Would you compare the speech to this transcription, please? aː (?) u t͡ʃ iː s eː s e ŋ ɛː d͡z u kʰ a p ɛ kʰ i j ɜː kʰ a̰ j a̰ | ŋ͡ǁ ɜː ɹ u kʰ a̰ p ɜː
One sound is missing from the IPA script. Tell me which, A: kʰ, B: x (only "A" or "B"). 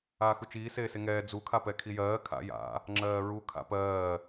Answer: B